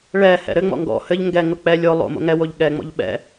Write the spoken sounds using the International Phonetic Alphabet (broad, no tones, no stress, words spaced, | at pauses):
ɭɛhɛ̰ ɾɘŋ͡mɔ̰ ŋɡɔ̰ hɘʎ ŋɡɛŋʊ k͡pɛ lʲo lˠo̰ mo̰ŋɛwoʎ ɠɛŋ͡mɔ̰ʎ ɓɛ̰